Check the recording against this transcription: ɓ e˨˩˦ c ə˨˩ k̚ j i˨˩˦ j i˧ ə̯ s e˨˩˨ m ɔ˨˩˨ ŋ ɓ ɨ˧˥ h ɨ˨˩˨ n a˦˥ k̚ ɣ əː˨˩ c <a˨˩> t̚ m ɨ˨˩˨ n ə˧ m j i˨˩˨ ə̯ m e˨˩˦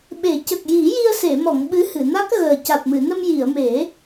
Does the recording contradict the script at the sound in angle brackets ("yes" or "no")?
no